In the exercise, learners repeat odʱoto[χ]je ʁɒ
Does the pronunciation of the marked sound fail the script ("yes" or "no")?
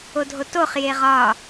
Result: no